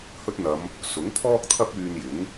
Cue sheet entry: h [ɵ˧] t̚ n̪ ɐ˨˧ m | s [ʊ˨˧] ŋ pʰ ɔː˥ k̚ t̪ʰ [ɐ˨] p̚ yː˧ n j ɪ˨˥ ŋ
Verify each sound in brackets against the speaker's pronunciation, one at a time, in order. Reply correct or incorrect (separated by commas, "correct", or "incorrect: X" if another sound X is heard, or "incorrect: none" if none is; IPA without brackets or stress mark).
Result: incorrect: ɵ˥, incorrect: ʊ˨˥, incorrect: ɐ˥